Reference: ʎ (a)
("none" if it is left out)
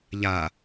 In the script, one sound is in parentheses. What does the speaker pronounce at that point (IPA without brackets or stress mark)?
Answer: a